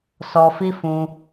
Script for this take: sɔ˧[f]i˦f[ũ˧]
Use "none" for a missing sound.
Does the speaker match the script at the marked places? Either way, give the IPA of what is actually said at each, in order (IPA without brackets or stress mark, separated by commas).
f, ũ˧